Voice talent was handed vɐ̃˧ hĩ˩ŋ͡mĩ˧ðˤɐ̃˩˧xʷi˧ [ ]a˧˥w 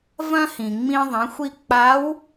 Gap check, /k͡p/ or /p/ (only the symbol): k͡p